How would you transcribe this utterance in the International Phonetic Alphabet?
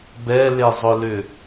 b ɛ l e zˤ ʊ l ʏ

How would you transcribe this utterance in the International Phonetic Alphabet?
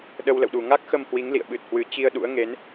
ɗ ə˧ w l ə̰˧˨ w ɗ u˨˩ ŋ a˦˥ k̚ x ə˧ m h w i˨˦ ŋ l ḭ˧˨ ə̯ ɓ ɨ˨˩ t̚ h w ɨ˨˦ t͡ɕ i˧ ə̯ ɗ ṵ˧˥ ə̯ ŋ e˨˦ n

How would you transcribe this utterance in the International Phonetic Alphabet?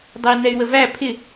dˤ ɛ i̯ n ɛ y̯ w ə v æ pʰ ɪ

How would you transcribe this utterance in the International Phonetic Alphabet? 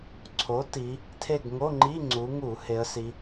ǀʰ o˨˥ t i˩˧ | tʰ e˦˨ ɡ ŋ o˧˥˧ ŋ͡ǃ i˧˥˧ ŋ͡ǀ u˩˧ ŋ u˧˩˧ h e˩˧ ə̯ s i˩˧

